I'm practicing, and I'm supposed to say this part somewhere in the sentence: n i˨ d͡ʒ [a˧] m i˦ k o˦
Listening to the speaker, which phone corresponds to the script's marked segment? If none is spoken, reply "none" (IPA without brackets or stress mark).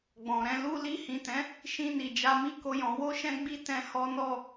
a˧